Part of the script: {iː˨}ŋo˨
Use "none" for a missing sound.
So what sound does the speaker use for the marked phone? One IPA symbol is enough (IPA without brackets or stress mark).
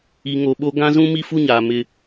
i˨